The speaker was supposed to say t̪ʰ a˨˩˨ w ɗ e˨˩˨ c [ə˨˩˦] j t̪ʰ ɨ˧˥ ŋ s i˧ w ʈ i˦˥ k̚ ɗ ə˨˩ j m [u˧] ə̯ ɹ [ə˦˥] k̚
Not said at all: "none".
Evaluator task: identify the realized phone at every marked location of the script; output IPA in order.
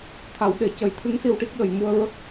ə˨˩˦, u˧, ə˦˥

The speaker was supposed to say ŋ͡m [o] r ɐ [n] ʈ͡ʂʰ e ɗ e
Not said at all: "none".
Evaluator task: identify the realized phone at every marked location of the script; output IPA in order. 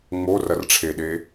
o, r

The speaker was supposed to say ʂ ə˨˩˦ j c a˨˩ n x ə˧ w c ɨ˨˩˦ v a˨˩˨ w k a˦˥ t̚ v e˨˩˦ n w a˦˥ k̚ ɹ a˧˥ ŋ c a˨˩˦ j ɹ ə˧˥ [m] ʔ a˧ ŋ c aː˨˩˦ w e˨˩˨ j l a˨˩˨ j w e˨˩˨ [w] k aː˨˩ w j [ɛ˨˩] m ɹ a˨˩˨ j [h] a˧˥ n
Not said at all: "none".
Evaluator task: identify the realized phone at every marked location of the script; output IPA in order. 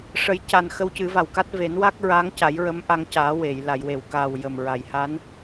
m, w, ə˨˩, h

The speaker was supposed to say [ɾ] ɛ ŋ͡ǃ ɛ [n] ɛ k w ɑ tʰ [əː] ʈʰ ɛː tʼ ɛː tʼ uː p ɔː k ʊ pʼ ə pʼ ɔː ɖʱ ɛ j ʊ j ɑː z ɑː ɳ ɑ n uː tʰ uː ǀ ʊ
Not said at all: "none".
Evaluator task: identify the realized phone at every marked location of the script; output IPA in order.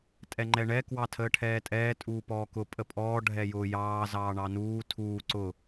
tʼ, ɳ, əː

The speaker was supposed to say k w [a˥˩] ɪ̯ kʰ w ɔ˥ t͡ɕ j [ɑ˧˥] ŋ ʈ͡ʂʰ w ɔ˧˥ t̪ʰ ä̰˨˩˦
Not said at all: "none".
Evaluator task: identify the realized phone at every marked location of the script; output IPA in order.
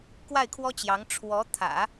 a˥˩, ɑ˧˥

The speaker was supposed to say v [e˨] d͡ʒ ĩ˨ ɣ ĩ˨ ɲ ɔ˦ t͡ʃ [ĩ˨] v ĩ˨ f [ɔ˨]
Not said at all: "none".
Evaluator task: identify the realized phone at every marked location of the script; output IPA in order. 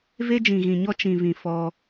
e˦, ĩ˨, ɔ˦

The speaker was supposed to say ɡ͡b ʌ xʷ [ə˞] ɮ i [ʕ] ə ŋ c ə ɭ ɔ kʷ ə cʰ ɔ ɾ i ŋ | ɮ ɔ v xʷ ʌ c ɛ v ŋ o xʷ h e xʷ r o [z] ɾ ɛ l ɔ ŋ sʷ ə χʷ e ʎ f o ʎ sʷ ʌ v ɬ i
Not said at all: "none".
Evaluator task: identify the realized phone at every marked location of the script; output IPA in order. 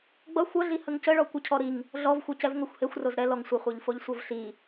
ʌ, h, z

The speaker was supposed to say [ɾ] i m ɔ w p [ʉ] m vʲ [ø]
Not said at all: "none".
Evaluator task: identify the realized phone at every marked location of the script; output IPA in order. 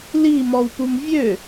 l, u, ø

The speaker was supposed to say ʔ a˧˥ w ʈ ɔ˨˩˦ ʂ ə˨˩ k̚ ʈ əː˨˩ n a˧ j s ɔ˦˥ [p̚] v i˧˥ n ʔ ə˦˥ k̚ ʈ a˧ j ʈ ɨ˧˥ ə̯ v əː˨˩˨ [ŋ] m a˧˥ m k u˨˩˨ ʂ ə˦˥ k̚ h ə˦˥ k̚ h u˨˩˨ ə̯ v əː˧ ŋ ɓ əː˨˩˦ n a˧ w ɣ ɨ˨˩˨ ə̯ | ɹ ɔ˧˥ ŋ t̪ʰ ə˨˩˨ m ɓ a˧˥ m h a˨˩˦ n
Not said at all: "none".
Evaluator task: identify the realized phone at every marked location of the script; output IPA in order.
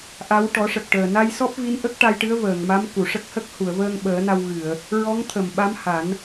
p̚, ŋ

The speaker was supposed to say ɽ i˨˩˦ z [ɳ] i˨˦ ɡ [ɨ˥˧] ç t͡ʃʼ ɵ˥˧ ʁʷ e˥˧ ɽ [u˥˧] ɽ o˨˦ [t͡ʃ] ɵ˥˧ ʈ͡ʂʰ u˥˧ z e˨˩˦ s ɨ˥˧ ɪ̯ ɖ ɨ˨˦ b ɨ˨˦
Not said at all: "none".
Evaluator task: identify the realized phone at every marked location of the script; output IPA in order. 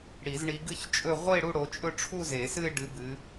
ɳ, ɨ˥˧, u˥˧, t͡ʃʼ

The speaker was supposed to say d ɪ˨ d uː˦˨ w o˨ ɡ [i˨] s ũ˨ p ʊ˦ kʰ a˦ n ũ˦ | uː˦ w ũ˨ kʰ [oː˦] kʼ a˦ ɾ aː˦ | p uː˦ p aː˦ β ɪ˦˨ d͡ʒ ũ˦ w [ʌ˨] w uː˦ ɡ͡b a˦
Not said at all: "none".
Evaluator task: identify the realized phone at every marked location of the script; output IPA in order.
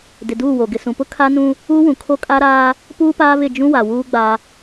ɪ˨, o˦, a˨

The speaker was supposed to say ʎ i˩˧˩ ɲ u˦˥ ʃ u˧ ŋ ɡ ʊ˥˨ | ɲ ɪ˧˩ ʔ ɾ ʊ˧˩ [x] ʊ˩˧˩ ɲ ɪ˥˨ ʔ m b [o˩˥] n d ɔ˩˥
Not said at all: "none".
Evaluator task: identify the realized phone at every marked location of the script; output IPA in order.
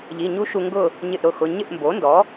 x, o˩˥

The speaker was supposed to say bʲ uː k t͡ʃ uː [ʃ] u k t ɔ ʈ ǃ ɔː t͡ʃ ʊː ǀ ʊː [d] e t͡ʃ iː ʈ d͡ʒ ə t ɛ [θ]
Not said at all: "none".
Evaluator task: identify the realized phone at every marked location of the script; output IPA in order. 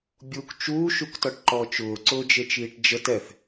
ʃ, d͡ʒ, θ

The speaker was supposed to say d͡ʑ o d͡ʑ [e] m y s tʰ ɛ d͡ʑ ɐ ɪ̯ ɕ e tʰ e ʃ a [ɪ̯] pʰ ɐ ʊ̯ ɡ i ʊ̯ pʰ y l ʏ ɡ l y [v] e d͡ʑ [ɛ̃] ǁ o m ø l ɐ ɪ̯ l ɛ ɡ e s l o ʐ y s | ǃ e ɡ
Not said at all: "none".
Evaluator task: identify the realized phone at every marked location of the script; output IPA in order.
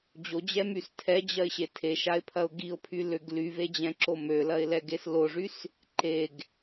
ɛ, ɪ̯, v, ɛ̃

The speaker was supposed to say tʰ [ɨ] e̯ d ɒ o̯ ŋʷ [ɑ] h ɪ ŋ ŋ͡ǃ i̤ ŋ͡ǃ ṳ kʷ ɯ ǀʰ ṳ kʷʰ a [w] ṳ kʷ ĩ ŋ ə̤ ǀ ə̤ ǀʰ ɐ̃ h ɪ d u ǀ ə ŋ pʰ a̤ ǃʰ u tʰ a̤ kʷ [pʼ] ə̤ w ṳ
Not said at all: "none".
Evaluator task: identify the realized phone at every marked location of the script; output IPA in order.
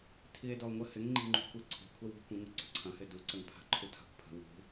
i, ə, w, pʰ

